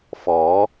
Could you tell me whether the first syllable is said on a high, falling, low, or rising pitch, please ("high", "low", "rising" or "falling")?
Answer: rising